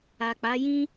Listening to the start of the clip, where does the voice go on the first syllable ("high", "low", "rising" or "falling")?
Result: low